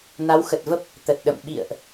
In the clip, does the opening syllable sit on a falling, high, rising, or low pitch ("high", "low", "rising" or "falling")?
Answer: rising